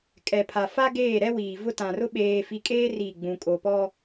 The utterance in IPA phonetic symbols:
kʼ ɛ˨ pʰ a˨ f a˦ ɡ eː˦˨ ɾ ɛ˦ w iː˨ v ʊ˦ t ã˨ r ʊ˦ ɓ eː˨ f i˨ kʼ eː˦ r i˦˨ ɡ͡b ũ˨ kʼ o˨ p ɔ˦

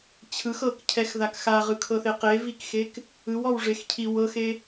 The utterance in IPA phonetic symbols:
t͡ɕʰ ɯ x ɤ k cʰ ɛ x ð a k x a ʁ ɯ kʰ ɤ θ e q e v i k x e k | ɯ w ɔ w ʐ e x cʰ i w ɤ x e

